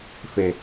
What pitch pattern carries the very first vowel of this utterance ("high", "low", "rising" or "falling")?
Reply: low